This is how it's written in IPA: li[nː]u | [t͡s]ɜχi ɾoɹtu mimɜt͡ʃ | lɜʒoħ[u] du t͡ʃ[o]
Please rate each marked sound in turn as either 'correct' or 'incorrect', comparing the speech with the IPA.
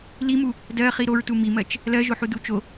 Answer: incorrect, incorrect, correct, correct

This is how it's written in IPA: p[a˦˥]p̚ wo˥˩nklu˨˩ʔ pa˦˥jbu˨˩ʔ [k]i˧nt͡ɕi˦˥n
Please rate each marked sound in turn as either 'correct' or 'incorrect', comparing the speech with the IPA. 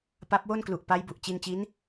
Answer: correct, incorrect

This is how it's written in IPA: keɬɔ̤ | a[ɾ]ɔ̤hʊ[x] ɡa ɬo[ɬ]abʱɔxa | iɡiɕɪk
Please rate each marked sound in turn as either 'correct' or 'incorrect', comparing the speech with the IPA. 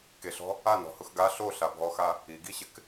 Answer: incorrect, correct, correct

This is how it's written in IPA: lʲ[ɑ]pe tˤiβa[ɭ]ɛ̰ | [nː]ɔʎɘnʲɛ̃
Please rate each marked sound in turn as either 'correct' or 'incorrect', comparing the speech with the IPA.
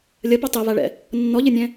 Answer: incorrect, correct, correct

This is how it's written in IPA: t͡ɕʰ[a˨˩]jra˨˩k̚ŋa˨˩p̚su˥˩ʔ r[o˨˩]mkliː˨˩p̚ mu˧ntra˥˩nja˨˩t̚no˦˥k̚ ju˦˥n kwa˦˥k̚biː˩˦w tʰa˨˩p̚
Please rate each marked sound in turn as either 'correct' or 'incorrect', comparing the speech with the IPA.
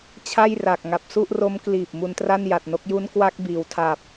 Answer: incorrect, incorrect

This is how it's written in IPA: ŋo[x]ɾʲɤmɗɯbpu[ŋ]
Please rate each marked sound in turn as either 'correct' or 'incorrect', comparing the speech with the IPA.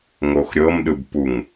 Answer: correct, correct

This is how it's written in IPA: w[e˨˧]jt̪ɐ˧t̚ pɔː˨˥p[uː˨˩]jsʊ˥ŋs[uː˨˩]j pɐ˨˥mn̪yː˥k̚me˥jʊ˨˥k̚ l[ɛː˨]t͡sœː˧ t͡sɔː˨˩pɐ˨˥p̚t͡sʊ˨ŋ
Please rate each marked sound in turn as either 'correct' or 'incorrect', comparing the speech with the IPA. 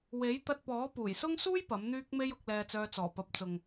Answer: incorrect, correct, incorrect, incorrect

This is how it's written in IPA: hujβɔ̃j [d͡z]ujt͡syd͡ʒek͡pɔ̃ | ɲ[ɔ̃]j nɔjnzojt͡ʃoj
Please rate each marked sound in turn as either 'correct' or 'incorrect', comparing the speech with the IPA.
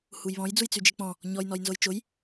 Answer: correct, incorrect

